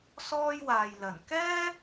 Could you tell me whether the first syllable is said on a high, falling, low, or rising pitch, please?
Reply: high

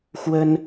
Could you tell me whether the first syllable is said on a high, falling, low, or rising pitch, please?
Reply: high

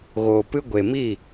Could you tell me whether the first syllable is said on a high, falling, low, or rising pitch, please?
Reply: low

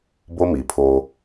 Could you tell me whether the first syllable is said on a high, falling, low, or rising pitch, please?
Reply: high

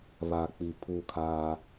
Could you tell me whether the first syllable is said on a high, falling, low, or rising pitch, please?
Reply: low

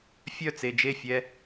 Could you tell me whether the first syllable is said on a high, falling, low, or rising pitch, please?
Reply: falling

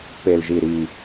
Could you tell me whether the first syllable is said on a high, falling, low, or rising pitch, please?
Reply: low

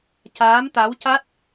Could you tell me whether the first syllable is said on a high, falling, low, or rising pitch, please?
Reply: rising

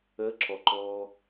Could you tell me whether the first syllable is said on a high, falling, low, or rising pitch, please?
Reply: rising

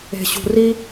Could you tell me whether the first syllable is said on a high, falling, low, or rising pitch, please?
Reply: low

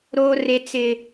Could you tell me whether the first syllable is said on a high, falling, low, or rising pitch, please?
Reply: high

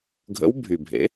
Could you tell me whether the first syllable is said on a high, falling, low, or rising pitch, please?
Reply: rising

